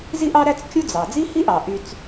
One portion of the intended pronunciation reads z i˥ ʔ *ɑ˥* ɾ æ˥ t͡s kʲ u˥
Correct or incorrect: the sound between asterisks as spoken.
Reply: correct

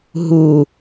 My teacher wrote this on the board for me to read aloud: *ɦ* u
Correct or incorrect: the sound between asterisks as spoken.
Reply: correct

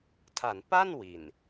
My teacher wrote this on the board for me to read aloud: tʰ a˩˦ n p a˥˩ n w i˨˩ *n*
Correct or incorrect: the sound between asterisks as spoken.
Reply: correct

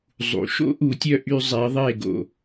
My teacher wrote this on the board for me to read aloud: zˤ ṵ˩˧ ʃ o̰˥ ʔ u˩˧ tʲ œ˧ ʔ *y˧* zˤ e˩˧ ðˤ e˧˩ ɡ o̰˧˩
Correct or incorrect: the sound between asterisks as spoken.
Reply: correct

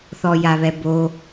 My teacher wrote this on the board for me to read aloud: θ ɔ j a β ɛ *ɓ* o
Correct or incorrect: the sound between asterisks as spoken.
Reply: incorrect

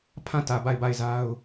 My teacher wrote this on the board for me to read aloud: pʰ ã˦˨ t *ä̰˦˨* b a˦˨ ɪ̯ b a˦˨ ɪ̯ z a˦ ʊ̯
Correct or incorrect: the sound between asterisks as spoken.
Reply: incorrect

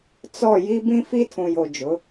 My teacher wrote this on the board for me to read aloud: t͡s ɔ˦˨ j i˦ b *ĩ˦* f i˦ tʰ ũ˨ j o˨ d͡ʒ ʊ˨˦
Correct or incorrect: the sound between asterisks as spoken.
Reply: correct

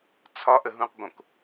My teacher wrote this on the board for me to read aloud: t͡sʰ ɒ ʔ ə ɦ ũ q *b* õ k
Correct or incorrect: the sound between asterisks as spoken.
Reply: correct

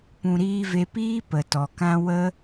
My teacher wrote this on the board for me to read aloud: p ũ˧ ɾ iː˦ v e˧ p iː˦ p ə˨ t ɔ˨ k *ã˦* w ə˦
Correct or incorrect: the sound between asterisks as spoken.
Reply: correct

